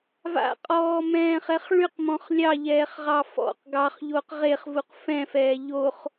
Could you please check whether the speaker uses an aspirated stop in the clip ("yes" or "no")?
no